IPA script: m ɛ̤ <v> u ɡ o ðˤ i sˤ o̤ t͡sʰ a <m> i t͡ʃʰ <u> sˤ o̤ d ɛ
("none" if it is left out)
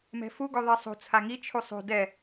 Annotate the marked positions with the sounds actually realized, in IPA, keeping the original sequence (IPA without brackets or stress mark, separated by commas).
f, ŋ, u